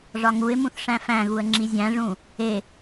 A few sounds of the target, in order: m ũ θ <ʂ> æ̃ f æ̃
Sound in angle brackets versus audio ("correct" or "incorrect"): correct